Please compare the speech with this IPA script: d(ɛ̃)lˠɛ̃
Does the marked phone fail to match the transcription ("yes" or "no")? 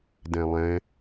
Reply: no